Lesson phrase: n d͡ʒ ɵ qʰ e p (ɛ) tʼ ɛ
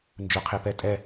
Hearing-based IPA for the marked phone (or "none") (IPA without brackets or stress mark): ɛ